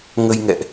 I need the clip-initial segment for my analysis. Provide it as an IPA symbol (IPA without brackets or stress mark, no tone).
ŋ